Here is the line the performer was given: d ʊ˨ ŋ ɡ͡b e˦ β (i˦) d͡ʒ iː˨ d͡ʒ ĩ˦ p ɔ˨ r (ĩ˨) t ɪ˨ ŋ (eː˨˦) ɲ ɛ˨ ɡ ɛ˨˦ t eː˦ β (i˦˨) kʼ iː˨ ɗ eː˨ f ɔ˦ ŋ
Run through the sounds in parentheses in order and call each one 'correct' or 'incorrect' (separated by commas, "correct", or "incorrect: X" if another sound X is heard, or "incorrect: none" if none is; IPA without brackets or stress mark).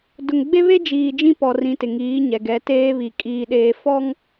incorrect: e˦, correct, incorrect: iː˨˦, incorrect: i˨